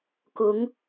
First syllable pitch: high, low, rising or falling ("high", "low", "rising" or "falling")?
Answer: rising